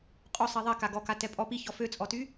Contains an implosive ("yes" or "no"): no